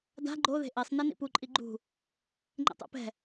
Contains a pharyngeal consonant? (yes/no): no